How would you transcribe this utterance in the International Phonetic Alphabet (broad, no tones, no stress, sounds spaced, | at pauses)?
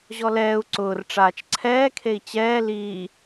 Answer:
ʑ ɔ l ɛː u̯ ǀ ʊː r ʈ͡ʂ aː t͡ʃ ǀʰ ɛː kʰ e i̯ t͡ɕ ɛː l iː